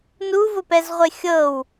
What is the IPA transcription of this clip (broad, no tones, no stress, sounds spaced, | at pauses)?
n u v ʊ p ɛ z ʁʷ e xʲ ɤ w